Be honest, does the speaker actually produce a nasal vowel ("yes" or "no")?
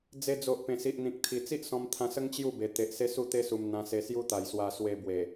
yes